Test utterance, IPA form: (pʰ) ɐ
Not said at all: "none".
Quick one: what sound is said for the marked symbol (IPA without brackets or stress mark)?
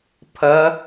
pʰ